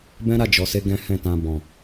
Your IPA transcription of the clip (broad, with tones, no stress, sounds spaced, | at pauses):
b ɛ̃˦ ɾ a˦˨ d͡ʒ ɔ˨ s e˧ ɡ ɛ̃˦ h ɛ̃˦˨ t ã˧ b ɔ̃˨